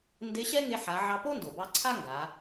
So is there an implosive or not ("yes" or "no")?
no